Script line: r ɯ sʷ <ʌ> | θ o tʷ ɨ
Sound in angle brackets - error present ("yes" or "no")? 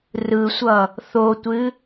no